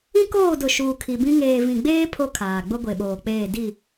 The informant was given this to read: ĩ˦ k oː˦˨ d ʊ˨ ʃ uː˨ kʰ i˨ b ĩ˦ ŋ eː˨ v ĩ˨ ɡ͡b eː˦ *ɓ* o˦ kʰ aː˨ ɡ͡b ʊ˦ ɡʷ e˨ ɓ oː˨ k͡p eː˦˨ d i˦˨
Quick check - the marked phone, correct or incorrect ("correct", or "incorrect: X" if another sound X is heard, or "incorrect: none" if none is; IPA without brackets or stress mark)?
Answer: incorrect: pʰ